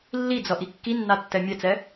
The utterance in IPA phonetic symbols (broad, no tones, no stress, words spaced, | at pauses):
lːid͡zʌʔi kːinːatːɛ mʲɛt͡sɛ